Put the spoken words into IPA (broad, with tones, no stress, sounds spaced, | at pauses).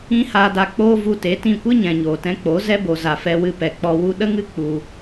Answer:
ĩ˦ h aː˧ d a˧ k͡p oː˦ v u˧ t e˨˦ t ĩ˦˨ kʷ ɨ˦ ɲ ɛ̃˨ ɲ oː˨ t ɛ̃˧ k͡p o˨˦ z ɛ˦ b o˨ z a˨ f ɛ˧ w ɨ˧ p ɛ˨ k͡p ɔ˧ w u˦ ɗ ə˦ ŋ ɨ˦ k͡p u˧